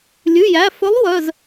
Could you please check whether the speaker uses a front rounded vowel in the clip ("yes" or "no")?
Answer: yes